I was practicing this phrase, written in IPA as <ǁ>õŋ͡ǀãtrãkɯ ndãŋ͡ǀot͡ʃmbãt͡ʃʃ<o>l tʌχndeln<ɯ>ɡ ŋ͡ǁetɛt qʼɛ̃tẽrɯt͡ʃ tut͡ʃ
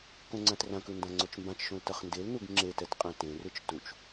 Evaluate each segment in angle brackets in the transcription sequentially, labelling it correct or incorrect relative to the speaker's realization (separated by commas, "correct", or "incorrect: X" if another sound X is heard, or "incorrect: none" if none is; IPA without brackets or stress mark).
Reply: incorrect: k, incorrect: õ, incorrect: u